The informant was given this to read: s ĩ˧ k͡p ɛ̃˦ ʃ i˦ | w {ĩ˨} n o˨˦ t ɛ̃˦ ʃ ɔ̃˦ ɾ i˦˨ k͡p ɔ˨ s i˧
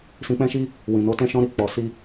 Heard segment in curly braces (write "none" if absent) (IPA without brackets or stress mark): ĩ˨